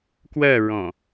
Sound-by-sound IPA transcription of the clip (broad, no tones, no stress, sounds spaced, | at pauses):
k w ɜ ɹ ɔ̃